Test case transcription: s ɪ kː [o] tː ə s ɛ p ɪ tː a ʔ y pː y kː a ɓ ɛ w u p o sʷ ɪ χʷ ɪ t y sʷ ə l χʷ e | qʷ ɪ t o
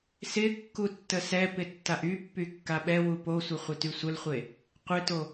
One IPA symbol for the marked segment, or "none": u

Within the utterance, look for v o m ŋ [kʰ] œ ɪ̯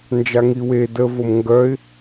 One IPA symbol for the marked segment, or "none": ɡ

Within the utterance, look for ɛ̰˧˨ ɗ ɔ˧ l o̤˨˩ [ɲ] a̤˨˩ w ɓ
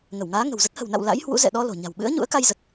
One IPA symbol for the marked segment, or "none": ɲ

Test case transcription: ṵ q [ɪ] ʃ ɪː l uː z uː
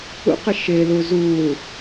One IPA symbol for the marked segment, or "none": ɪ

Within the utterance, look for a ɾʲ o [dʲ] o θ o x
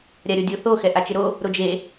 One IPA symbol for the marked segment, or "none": dʲ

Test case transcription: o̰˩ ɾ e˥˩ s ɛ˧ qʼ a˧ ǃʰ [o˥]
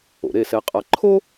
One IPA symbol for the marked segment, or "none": o˥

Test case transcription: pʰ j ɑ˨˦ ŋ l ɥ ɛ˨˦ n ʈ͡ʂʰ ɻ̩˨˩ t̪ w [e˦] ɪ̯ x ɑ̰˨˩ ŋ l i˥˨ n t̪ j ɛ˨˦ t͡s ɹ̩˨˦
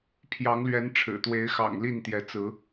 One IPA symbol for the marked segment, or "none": e˨˦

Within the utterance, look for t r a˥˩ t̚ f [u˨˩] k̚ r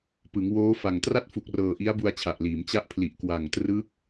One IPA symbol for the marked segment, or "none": u˨˩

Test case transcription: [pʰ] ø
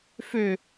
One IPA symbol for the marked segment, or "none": f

